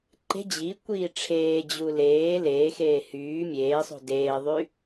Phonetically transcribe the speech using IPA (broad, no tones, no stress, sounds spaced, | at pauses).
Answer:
ǃ e̤ d͡ʑ i kʷ iː ʈ͡ʂʰ eː d͡ʑ u l eː l eː x eː h yː mʲ eː sˤ ṳ d eː ðˤ y